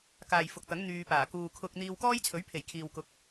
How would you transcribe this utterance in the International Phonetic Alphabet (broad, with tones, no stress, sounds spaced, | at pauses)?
k aː˨ j f ʊ˨ k̚ t̪ ɐ˨˥ ŋ n̪ yː˧ p aː˨˩ k uː˨ kʰ ʊ˧ k̚ n̪ iː˧ w k ɔː˥ j t͡sʰ ɵ˨˥ ɥ pʰ e˨˩ j kʰ iː˨ w k ʊ˨˥ k̚